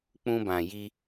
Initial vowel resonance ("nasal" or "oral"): nasal